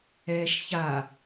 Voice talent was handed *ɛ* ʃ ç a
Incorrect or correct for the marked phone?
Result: incorrect: ɛː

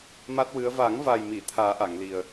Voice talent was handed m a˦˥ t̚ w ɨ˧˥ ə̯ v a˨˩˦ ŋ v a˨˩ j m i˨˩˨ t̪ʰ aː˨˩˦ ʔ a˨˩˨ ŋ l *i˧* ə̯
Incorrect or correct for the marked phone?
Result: incorrect: i˨˩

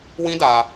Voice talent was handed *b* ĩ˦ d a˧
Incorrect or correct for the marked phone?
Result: incorrect: w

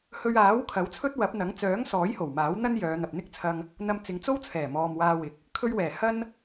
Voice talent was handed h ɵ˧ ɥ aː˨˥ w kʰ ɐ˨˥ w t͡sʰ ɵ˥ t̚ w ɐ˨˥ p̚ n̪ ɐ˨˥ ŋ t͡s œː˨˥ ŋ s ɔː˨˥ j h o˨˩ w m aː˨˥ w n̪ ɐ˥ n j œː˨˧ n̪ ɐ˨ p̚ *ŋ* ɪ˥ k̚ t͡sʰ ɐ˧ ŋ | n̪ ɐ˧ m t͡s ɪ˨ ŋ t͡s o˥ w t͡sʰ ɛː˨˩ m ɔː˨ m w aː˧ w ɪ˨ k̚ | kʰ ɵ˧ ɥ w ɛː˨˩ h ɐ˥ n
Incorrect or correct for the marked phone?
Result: incorrect: n̪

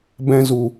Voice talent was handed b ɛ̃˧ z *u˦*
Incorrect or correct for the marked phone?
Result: incorrect: u˨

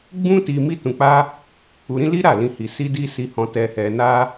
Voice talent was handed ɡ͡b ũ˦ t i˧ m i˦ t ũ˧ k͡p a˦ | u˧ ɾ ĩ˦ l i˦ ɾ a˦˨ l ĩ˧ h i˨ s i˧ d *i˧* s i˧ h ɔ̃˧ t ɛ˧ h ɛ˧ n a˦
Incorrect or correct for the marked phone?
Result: incorrect: i˦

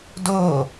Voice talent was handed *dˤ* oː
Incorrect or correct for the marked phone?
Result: incorrect: d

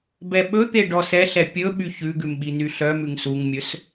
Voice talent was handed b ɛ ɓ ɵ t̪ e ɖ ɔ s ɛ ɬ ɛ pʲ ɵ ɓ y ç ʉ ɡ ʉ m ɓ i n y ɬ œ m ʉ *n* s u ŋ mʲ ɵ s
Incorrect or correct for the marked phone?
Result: incorrect: ŋ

